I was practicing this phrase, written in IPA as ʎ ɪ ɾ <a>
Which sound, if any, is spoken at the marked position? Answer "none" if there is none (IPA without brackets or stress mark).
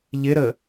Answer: ə